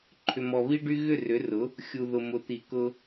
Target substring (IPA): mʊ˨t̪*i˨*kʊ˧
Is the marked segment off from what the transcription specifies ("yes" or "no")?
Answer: no